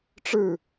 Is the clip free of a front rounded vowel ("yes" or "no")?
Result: yes